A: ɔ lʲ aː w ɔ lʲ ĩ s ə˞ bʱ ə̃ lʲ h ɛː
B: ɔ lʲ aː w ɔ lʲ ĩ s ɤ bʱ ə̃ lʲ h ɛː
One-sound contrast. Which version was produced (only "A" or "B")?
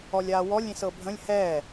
B